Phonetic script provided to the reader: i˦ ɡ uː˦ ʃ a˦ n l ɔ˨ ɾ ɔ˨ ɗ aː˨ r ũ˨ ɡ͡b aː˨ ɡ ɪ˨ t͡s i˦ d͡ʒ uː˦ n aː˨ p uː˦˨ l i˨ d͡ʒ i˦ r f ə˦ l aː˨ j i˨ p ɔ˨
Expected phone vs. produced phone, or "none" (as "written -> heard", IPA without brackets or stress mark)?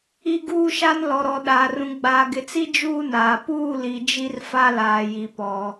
ə˦ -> a˦